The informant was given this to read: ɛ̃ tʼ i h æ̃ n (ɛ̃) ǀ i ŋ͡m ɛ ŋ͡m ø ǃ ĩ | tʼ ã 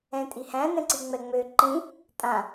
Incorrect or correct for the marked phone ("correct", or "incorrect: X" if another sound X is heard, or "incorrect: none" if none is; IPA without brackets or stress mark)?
correct